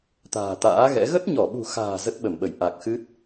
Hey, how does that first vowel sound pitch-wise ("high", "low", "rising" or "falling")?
low